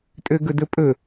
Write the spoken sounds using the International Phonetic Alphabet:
tʼ ø ɡ ɵ d ɵ pʼ ɵ

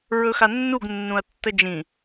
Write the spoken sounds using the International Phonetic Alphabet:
ɹ ɵ x a nː u ɡ nː ũ ɐ̯ tː ə d͡ʒ ĩ

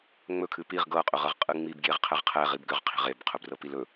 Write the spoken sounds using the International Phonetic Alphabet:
ŋ͡m ɵ kʰ ɨ p i ʁ ɡ ɤ qʼ ɵ ʁ ɤ ʁ qʼ ɨ ŋ͡m i b ɡ j e ʁ qʰ ɛ ʁ qʰ ɛ ʁ i b ɡ ʏ ʁ qʰ i̤ ʁ e b qʰ ɵ b r ɤ p i l ɵ

